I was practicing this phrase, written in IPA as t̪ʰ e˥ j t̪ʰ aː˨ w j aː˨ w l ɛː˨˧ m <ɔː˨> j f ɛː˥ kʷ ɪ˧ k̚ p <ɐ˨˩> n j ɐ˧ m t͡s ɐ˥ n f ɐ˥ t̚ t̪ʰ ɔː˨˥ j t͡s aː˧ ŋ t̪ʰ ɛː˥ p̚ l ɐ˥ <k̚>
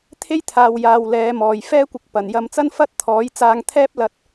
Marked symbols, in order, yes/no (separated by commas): yes, yes, no